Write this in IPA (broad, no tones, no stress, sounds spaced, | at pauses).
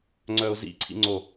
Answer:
ŋ͡ǀ œ ʊ̯ z ḭ ǀʰ ḭ ŋ͡ǀ o